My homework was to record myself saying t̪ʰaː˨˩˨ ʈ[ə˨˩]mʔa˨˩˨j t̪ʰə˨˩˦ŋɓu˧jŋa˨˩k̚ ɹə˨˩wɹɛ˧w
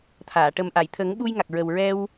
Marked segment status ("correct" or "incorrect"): correct